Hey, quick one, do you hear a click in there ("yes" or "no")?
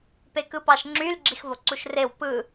yes